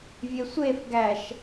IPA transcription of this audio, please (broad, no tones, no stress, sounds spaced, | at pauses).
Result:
vʲ e sʷ e f ɡ æ ʃ